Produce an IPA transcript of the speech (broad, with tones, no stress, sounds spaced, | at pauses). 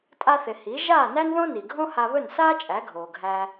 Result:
tʼ a˧ θ ɪ˩ h i˩˥ ʒ aː˥˩ n æ˥ n ð õ˥ n i˩ ɡʱ õ˥ h a˧ β ɵ˥˩ n s aː˥ t͡ʃʼ æ˩˥ ɡʱ oː˩ ɡʱ æ˧